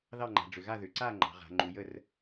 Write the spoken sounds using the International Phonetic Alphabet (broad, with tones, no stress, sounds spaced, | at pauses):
ð ɑ˥˨ ŋ͡ǃ a̤˩˧ ɖ͡ʐ ʏ˩˧ ɣ a˥˨ ð ʏ˩˧ ǀ a˥˨ ŋ͡ǃ ɑ̤˩˧ ʁ a̤˩˧ ŋ͡ǃ u˩˧ j ə˥˨ r